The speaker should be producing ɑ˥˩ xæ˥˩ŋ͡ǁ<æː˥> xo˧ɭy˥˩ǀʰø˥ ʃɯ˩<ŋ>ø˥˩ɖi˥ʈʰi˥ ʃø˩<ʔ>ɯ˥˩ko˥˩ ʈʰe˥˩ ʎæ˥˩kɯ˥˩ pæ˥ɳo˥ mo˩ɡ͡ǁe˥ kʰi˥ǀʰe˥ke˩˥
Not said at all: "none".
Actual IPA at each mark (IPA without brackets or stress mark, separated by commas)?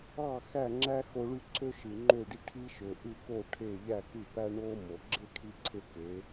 æ˥, ŋ͡ǃ, ʔ